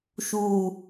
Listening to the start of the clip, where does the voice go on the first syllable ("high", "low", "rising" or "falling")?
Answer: low